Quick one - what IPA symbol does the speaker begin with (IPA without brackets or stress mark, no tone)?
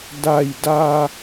d